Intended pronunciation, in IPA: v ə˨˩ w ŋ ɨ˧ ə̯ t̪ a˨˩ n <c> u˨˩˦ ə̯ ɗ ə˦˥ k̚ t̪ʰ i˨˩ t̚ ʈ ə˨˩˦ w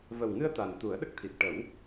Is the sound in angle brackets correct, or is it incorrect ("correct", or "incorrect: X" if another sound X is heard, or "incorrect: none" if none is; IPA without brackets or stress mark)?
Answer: incorrect: t̪